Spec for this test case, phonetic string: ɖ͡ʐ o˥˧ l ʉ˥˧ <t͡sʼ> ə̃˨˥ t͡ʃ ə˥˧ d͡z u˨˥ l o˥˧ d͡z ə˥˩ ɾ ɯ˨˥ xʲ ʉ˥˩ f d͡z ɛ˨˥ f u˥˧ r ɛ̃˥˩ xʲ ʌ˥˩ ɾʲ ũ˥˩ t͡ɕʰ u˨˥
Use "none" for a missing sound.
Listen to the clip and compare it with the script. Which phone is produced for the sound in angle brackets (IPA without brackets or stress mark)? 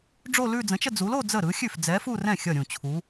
d͡z